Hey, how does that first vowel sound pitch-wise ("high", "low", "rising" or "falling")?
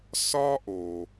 high